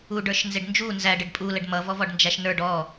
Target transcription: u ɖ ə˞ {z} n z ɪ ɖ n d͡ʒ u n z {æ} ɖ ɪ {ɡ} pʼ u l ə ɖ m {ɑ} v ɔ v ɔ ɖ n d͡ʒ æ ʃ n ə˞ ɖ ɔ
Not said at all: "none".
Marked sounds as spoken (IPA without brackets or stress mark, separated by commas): ʃ, æ, ɖ, ʌ